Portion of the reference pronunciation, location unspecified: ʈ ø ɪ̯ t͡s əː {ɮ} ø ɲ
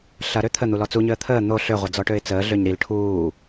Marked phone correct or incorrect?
correct